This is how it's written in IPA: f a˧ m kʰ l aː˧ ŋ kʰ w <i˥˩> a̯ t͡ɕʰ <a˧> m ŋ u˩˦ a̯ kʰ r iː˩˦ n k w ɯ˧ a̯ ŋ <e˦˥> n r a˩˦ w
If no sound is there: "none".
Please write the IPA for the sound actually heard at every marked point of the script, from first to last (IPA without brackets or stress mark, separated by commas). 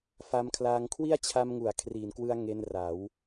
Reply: i˥˩, a˧, e˧